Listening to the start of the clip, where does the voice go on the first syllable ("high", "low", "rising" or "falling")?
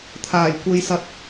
low